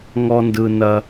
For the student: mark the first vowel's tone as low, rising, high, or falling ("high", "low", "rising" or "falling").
high